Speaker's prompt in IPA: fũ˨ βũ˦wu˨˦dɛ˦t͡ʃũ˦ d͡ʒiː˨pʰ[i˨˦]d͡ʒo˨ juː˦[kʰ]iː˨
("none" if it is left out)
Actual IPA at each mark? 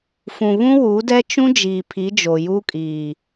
i˨˦, kʼ

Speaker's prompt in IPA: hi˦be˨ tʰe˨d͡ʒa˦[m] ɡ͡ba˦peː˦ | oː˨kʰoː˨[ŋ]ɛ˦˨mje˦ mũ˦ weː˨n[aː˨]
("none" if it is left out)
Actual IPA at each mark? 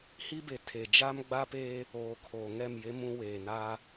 m, ŋ, aː˦

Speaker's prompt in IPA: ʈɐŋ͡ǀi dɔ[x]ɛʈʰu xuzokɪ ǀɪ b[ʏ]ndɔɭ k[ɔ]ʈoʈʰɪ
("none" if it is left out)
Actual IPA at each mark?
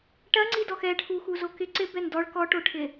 x, ɛ, ɔ

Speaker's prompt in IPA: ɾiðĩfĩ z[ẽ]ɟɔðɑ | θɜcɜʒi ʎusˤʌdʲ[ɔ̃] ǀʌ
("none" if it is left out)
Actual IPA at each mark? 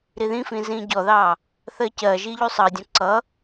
ĩ, ɔ̃

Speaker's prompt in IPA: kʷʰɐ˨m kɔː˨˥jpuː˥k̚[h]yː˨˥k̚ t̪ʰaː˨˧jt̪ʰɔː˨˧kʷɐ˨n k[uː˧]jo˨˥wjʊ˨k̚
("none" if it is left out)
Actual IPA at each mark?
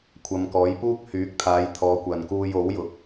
h, uː˧

